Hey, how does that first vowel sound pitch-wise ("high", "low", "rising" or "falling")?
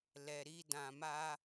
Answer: low